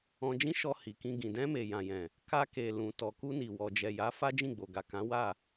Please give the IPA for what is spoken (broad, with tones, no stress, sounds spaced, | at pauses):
ɔ̃˧ d͡ʒ ĩ˦ ʃ ɔ˧ h i˨ k ĩ˧ ɡ ĩ˨ d ɛ̃˧ m e˨ j ã˨ j ɛ̃˨ | k a˧ k e˨ l ũ˨ t ɔ˨ k u˧ n i˨ w ɔ˨ d͡ʒ ɛ˨ j a˨˦ f a˦ d͡ʒ ĩ˦˨ ɡ͡b o˨ ɡ a˨ k ã˨˦ w a˦˨